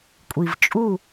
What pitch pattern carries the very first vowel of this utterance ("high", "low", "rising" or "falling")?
low